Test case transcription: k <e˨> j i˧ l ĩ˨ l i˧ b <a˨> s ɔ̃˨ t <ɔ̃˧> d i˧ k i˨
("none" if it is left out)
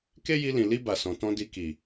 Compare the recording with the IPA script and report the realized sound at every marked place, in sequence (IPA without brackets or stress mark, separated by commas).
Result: e˦, a˨, ɔ̃˧